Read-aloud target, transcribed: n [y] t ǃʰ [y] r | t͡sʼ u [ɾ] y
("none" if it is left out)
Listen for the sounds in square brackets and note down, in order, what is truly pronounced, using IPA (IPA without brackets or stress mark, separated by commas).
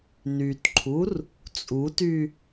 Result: y, u, t